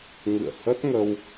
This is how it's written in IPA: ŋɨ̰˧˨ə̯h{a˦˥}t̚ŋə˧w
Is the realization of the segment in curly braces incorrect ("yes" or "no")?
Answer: yes